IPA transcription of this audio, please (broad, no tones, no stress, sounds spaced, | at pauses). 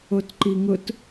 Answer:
o t ǃ i ŋ ʊ t